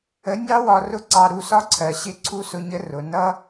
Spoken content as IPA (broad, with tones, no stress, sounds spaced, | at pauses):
ə˨˦ nʲ ɑ˦ w ɒ˧ r ʊ˦ ǀ ɑ˧ ɾ u˧ s ɒ˦ ǀʰ ɜ˨ ɕ ɪ˦˨ ǀʰ u˦ s ʊ˧ ɲ ə˦ r ʊ˨ n ʌ˦